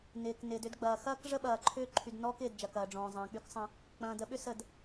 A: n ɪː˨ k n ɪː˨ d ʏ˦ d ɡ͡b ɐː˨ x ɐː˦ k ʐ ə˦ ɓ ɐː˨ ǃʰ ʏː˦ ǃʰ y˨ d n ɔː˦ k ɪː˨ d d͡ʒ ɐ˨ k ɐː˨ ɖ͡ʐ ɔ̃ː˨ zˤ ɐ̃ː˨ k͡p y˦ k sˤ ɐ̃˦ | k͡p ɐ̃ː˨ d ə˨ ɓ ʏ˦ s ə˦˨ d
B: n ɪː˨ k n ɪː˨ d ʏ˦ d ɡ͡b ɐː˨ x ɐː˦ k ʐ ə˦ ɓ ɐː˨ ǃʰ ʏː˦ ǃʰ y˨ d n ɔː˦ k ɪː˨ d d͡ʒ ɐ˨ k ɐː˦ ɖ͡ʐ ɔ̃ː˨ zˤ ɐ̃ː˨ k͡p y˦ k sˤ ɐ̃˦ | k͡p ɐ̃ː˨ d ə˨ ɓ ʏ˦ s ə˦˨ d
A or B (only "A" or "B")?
A